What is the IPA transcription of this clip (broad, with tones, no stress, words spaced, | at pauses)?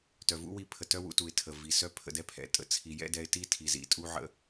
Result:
tœ˨vṵ˦wi˧pʰə˨ tœ˦wṵ˧tu˨ɪ̯ tʰə˨vi˨sœ˦ pʰə̰˧dɛ˦pʰɛ̰˨ tʼə̰˦t͡sʰi˨ jɛ̰˦dɛ˧ɪ̯ti˦tʰi˨ zḭ˦tʼu˦ʕə̰˦